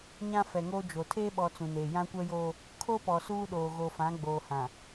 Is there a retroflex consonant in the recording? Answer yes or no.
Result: no